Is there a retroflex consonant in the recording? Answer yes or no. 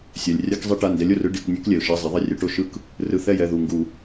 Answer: yes